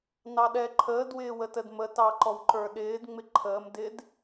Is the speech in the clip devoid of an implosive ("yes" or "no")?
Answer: no